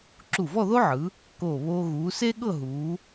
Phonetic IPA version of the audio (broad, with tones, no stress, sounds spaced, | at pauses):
ǁ u˧˩ v ɔ˥˧ ð o˥ ʕ ɯ˩˧ | k oː˧˩ β oː˧ ɣ uː˩˧ s e˥ ɠ ɤ˥˧ ɦ uː˩˧